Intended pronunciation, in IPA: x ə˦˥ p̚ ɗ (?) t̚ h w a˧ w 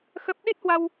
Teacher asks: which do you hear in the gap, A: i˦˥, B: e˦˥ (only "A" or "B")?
A